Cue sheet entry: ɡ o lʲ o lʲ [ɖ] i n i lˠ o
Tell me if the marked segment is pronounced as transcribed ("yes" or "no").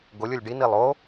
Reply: yes